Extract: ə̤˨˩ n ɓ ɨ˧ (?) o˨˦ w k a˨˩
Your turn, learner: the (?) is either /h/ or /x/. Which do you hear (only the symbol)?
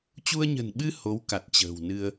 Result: h